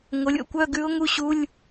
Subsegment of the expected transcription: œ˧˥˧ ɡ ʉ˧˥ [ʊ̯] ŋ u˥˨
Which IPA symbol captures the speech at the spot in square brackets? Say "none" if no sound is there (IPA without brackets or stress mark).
ʊ̯